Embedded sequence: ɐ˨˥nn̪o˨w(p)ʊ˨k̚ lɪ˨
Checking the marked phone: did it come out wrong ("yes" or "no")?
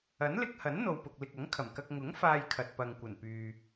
no